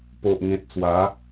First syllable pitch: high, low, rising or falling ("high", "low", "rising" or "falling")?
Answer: low